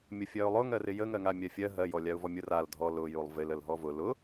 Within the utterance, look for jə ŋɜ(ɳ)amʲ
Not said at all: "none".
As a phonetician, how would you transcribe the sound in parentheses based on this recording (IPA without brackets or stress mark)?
ŋ